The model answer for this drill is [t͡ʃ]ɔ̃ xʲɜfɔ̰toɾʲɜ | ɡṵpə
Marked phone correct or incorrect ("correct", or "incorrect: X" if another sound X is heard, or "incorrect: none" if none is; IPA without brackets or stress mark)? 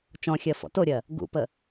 correct